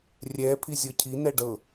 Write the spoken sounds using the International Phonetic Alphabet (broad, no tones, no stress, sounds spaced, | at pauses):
rʲ ɛ pʰ i zʲ ɤ cʰ i n ɛ ɖ ɤ